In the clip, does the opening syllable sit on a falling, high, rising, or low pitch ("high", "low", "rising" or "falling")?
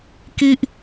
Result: high